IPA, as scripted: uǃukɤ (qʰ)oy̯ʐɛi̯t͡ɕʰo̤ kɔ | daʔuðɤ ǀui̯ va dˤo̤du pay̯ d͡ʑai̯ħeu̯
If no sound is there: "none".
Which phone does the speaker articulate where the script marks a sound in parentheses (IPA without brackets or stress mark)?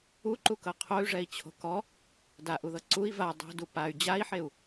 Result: qʰ